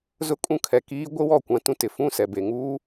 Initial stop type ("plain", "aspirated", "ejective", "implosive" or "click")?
ejective